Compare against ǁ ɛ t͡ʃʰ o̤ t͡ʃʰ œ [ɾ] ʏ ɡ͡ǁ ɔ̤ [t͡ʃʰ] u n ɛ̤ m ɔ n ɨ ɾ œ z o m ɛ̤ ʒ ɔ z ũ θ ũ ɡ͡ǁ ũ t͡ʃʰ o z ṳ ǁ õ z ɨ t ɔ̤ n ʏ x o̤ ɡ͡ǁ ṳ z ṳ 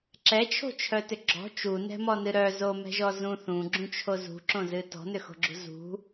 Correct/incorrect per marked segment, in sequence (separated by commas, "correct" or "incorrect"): incorrect, incorrect